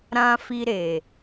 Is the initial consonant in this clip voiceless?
no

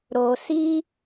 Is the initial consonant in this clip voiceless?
no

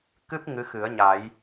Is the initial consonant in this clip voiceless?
yes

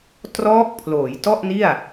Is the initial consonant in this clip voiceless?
yes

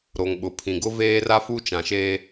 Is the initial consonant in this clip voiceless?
no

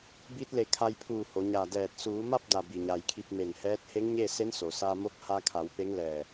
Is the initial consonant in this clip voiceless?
no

